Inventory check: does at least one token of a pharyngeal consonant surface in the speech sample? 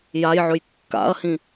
yes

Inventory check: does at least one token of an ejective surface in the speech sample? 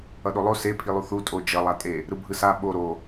yes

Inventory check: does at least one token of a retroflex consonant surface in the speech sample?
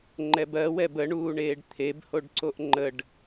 yes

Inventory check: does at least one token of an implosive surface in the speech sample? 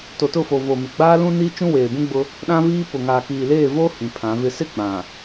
yes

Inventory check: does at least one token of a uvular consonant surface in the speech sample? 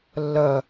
no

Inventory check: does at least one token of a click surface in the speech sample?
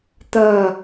no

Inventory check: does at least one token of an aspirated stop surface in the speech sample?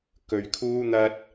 yes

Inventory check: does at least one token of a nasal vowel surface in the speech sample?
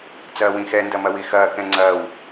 yes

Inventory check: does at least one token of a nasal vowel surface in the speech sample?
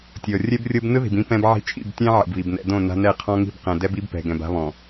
yes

